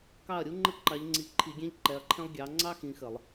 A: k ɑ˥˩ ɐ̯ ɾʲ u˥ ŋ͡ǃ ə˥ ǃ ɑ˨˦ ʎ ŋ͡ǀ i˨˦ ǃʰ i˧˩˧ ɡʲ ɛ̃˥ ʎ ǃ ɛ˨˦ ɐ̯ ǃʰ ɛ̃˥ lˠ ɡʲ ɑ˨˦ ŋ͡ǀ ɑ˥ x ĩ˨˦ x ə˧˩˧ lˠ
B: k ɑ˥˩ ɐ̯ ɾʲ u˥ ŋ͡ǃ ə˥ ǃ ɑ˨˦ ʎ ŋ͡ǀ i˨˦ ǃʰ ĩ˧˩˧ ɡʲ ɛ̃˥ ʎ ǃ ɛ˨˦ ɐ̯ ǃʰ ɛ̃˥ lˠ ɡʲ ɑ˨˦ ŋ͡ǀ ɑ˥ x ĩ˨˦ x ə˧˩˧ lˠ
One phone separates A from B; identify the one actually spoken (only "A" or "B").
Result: A